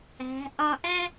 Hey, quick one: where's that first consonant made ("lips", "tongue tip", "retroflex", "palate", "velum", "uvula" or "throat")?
throat